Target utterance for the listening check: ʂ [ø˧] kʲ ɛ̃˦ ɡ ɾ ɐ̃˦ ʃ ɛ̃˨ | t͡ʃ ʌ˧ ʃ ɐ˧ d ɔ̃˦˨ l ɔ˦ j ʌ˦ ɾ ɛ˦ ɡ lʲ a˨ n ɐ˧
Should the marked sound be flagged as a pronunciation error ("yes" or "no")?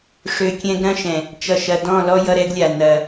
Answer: no